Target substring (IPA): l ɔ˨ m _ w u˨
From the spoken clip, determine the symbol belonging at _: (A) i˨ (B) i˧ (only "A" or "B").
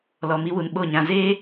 B